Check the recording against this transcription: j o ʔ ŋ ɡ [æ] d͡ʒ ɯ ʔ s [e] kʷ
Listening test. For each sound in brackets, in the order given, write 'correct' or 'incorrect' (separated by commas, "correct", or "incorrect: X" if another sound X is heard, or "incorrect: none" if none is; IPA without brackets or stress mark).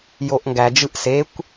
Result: correct, correct